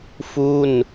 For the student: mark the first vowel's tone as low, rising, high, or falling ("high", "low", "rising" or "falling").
falling